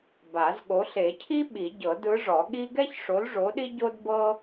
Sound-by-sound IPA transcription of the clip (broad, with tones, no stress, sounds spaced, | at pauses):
b a˨˩˦ z ɠ o˨˥ ɬ e˨˩˦ cʰ i˥ ɓ i˨˩˦ ɟ ɤ˨˩˦ d ɯ˨˥ ʐ ɔ˨˩˦ ɠ i˥ ɡ ɛ˥ ç ʂ o˨˥ l ʐ o˨˥ ɗ i˥ ɟ o˥ d b ɤ˥